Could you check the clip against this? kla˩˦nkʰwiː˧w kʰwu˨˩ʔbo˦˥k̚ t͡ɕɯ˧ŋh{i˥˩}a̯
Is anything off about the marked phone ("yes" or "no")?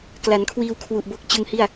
no